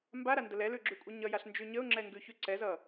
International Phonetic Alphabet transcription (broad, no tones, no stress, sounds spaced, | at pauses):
m b a ɾ a n d ə l ɛ l ʉ ɡ͡ǁ ʉ kʷʼ ə ɲ ʌ j a ɬ n d͡ʒ ʉ ɲ ə ʊ̯ ŋ͡ǁ ɛ ŋ ɡ ʉ ç ʉ ǀ ɛ z ʌ